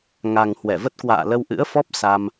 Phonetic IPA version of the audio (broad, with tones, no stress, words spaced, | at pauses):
ŋa˨˩ŋ hwɛ˧˩və˦˥t̚kwa̰ː˧˨ lə˧wʔɨ̰˧˥ə̯fɔ˦˥p̚ sa˧m